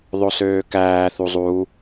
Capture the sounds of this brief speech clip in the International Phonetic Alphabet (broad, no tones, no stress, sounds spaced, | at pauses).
ðˤ o s øː k æː θ u zˤ u